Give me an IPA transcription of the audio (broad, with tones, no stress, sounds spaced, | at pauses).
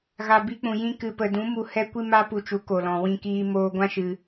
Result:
ɣ a˨ b i˧ k͡p ũ˨ j ĩ˧ k ɨ˨ p ə˨ d ũ˨˦ m u˧ h ɛ˦ kʷ i˦ m a˦ p u˧ t͡ʃ u˨˦ k o˨ l ɔ̃˨ w ĩ˧ k iː˧ m oː˧ ɡʷ ã˦ ʃ ɨ˧